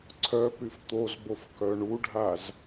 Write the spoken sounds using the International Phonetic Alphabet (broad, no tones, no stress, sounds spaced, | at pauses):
ǀʰ œ p y f t̪ o z b o f k œ ɳ u ɖʱ a z